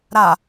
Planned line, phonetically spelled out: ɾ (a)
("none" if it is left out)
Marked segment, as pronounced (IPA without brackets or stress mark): a